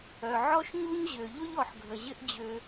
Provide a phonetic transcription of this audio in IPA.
œ˧ʕɔ˥ʃɲu˥ɲ ʑø˧ʎʊ˥ʎɔ˧ħ ɡʱə˧ʑɪ˥ʔ d͡ʑø˧

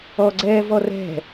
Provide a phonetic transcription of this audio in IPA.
ɔɡ͡ǀɛːvɔ rɛ̤

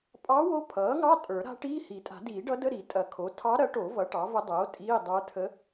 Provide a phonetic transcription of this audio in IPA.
pʼɑ˧˥wo˧˥ pʰʌː˩˥ŋɑ˧˥˧ tʼə˞˨˩˦ɾa̤˧˥ʈiː˧˥˧ hi˨˩˦tʼa̤˨˩˦diː˨˩˦ɖʌ˧˥ də˧˥˧ ɾi˨˩˦ tʼɐ˨˩˦kʰo˩˥ tʰɑ˧˥ɾɐ˩˥ʈo˨˩˦ vʌ˩˥ʈɑ˩˥və˧˥dˤoː˩˥ tʼiː˧˥˧ dˤə˞˧˥tʰə˧˥

